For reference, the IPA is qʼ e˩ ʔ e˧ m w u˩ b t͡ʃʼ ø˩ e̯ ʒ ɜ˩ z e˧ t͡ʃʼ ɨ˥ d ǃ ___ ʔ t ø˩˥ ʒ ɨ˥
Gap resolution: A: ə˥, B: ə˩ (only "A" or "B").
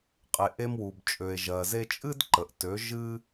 B